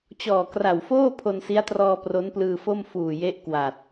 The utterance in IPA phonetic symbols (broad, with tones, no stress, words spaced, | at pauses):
t͡ɕɔː˨˩kra˨˩wfoː˥˩ pʰo˧nsi˦˥a̯trɔː˧ pro˦˥nplɯː˧fo˥˩m fuː˨˩je˦˥ʔ kwa˨˩t̚